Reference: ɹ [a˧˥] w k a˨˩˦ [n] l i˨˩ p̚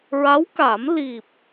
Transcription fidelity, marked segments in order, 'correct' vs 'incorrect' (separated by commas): correct, incorrect